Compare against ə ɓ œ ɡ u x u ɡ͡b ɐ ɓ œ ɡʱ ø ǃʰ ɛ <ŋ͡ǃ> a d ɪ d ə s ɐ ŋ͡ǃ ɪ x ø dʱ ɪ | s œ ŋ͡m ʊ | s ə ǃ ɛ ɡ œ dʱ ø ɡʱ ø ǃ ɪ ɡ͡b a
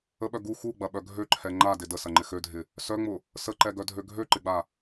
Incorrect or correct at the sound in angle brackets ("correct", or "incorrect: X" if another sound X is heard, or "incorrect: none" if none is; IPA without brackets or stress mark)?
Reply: correct